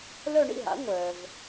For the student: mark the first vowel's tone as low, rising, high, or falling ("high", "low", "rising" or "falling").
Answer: falling